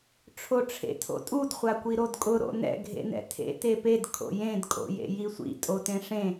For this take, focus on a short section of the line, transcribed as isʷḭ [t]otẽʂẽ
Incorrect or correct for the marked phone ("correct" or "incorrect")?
incorrect